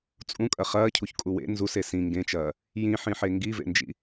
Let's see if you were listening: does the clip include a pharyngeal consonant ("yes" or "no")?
yes